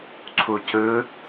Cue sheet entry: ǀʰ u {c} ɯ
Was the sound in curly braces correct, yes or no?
yes